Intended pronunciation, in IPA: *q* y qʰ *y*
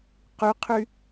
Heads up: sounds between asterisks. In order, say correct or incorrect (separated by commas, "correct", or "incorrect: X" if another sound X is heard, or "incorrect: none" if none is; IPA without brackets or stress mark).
correct, correct